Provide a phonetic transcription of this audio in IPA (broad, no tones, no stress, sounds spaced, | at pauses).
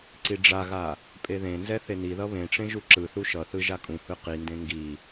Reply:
ǀ i ɖ͡ʐ a ɣ a | pʼ e ð ẽ n z ɛ θ e n i ð ʌ β ẽ ʈ͡ʂ ẽ ʒ u ǁ ɯ θ u ʃ ʌ θ ɯ ʒ a kʼ ũ h ɯ q i n d ẽ ŋ ɡ i